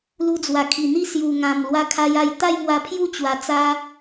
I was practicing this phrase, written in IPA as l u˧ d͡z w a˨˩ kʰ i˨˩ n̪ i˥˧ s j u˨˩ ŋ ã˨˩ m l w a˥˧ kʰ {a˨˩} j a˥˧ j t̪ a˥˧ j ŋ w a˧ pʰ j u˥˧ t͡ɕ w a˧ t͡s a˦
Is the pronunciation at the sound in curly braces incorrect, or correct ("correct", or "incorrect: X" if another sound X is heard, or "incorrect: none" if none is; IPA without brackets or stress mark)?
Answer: incorrect: a˦